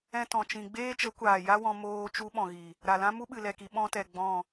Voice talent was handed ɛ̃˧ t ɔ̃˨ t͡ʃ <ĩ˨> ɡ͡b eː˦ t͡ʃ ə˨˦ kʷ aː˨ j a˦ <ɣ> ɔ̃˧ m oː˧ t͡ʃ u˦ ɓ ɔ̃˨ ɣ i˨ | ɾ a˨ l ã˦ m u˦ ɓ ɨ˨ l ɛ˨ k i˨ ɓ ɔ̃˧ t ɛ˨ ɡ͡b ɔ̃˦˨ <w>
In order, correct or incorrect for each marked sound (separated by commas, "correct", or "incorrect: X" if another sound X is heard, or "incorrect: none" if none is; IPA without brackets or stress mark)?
correct, incorrect: w, incorrect: none